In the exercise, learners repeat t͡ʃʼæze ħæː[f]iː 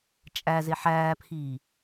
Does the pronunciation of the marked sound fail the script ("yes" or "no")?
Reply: yes